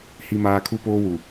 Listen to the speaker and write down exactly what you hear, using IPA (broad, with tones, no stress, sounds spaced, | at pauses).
h i˦ m aː˦ kʰ u˦ p oː˦ w u˨